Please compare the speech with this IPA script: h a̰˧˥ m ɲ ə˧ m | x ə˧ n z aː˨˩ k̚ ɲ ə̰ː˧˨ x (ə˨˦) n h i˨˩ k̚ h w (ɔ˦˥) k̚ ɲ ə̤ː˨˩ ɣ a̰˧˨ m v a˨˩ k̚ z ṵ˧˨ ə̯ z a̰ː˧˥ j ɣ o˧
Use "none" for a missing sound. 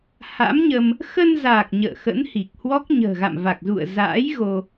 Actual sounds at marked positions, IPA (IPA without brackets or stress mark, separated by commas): ə̰˧˥, ɔ˦˥